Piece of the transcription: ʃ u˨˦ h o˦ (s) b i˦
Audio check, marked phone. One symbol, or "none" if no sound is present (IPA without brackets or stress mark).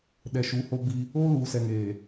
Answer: none